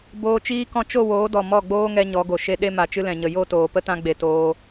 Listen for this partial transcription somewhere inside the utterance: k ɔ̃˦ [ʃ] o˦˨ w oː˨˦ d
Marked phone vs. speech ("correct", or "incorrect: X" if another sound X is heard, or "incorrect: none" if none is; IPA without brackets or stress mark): incorrect: t͡ʃ